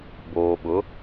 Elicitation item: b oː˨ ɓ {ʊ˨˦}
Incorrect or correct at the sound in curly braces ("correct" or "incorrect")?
correct